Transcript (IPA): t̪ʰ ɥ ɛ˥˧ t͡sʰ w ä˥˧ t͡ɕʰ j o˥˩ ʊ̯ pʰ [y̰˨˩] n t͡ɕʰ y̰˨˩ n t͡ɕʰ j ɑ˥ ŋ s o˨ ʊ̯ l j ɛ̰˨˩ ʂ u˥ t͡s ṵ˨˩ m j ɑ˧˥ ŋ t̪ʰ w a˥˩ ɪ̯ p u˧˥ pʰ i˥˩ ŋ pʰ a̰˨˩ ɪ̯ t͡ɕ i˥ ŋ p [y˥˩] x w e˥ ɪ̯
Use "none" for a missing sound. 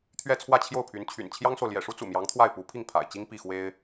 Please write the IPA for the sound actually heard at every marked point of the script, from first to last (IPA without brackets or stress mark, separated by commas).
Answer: y˧˥, i˥˩